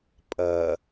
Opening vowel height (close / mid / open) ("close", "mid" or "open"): open